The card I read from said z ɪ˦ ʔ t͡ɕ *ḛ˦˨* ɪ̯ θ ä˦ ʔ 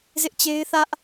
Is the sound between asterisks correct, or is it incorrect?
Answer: incorrect